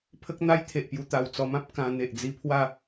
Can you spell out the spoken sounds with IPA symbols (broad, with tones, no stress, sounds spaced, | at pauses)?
pʰ ə˦ k̚ n̪ a˦ j t̪ʰ e˨ ʔ p j u˧ t̪ a˨˩ w t͡s ɔ˧ m ã˦ p̚ k ã˧ n̪ e˨ ʔ d͡z i˧ pʰ w a˥˧